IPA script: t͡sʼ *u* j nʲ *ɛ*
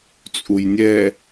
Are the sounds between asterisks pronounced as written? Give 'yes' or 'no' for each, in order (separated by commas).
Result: yes, yes